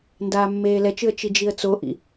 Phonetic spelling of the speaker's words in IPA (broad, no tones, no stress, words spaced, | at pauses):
ndaːmːeːlɛt͡ʃɯə̯ t͡ʃid͡ʒiə̯t͡soʔḭ